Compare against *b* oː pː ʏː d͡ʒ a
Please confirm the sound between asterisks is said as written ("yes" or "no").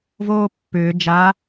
no